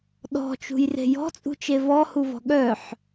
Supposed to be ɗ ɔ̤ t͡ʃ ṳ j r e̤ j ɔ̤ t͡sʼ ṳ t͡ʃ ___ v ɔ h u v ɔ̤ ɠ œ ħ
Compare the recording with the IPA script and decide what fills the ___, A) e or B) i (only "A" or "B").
A